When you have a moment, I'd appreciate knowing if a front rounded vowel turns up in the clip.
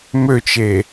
yes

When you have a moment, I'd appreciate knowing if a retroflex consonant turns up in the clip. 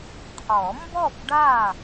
yes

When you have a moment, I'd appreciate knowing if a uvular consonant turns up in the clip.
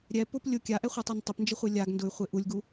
yes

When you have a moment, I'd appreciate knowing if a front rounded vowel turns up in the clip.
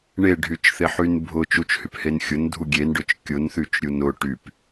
yes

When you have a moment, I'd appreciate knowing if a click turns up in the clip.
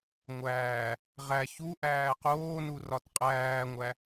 no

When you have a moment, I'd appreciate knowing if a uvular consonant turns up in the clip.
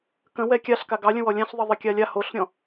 no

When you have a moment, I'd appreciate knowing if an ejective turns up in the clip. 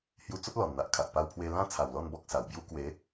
no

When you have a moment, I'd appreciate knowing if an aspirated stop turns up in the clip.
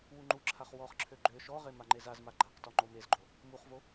yes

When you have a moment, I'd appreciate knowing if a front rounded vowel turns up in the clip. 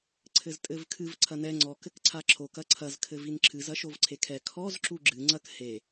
no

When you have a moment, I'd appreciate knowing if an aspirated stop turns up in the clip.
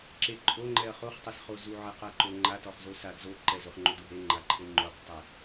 no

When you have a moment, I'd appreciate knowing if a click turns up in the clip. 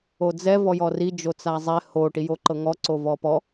yes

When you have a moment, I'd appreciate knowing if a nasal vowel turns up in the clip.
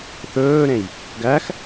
yes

